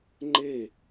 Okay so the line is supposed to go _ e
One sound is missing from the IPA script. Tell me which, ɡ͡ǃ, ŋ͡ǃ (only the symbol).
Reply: ŋ͡ǃ